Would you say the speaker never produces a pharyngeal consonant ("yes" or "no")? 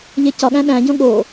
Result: yes